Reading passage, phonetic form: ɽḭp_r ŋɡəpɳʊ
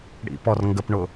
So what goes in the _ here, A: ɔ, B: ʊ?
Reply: A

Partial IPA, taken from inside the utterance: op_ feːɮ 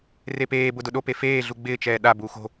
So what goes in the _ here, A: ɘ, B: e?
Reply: B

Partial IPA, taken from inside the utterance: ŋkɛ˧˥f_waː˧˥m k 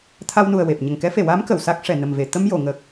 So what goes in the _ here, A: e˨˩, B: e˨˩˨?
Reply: B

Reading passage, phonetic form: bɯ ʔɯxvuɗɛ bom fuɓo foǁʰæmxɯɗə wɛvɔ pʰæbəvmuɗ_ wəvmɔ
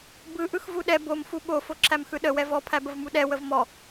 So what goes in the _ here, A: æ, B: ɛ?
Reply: B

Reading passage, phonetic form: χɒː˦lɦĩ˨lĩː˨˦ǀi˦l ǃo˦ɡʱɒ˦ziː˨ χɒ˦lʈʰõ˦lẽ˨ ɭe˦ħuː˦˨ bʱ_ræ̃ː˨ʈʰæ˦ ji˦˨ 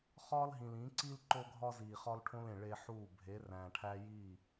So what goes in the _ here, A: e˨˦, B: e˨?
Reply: A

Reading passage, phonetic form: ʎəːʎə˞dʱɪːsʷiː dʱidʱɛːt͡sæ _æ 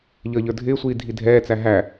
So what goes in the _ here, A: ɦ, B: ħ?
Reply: A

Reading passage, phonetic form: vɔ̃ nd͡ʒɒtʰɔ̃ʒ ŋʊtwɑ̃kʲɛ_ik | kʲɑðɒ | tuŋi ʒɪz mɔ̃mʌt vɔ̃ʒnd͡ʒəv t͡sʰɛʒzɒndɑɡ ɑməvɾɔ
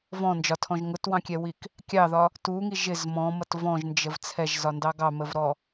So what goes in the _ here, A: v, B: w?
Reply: B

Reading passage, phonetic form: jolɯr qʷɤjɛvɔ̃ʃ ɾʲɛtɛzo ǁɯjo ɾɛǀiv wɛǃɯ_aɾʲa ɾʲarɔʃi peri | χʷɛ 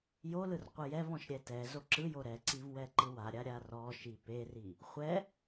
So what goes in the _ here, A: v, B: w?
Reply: B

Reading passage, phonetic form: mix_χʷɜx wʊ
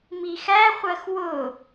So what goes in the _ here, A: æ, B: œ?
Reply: A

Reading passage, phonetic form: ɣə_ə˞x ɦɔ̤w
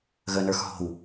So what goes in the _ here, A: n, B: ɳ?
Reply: A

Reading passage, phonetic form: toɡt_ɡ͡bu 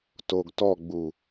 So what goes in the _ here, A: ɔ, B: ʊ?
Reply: A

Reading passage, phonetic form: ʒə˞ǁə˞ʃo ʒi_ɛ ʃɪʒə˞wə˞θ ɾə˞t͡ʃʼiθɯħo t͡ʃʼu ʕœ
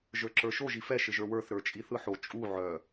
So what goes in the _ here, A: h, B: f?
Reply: B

